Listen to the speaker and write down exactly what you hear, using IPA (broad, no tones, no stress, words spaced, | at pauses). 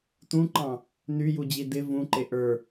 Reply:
tũǃɑ̃ | nyjud͡ʑi dɪ vũǃe ʔə˞